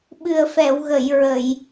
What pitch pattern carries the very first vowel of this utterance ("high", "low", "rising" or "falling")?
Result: low